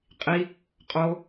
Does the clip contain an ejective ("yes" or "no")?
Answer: yes